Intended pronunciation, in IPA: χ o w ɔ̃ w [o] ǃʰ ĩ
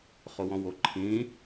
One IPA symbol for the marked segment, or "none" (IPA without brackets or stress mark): o